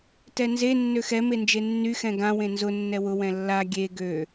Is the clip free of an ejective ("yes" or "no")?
yes